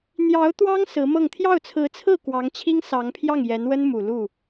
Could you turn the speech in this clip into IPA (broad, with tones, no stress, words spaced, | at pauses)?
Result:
n̪jɑ˧˥ʊ̯ t̪wɑ˥ŋ sɹ̩˧˥mɤ˥˧ŋ t̪ʰjɑ˥˩ʊ̯t͡sʰɹ̩˧˥ t͡sʰɹ̩˥˩ kwɑ˧˥ŋt͡ɕʰi˥ŋsɑ˧˥ŋpʰjɑ˥˩ŋ jɛ˧˥nwə˥nmu˨˩ lu˥˩